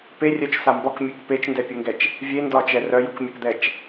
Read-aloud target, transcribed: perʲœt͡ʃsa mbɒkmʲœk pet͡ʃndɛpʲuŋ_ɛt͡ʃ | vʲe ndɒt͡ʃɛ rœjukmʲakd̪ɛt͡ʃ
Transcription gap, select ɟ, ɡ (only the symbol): ɡ